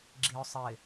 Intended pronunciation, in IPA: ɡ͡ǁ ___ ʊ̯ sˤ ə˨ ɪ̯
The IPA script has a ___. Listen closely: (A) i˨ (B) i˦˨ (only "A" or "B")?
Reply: A